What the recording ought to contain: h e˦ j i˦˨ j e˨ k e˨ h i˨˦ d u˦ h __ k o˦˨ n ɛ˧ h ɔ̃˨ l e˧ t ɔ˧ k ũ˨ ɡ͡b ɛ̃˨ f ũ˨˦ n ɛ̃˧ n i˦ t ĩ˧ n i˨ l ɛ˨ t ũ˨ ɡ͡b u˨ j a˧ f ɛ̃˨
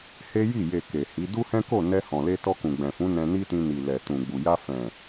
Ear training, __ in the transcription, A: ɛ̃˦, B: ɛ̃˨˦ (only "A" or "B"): A